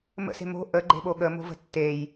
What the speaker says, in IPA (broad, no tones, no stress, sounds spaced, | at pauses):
m ə̰ s e̤ m o̤ ʔ ə ɡ͡ǃ e̤ ɓ o ɠ ə m o̤ v ə̤ tː e j